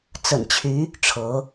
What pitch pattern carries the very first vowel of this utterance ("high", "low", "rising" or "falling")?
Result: low